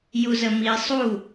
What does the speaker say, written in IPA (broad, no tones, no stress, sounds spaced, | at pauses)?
j u z ə m i sˤ u